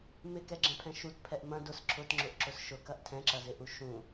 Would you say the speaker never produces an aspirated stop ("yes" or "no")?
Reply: no